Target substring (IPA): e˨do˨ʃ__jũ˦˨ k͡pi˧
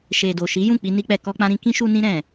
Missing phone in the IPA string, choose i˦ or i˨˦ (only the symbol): i˨˦